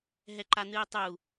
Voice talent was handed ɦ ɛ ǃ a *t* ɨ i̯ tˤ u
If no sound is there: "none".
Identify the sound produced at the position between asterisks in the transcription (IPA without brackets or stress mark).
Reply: n̪